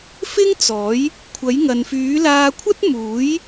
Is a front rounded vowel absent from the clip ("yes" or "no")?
no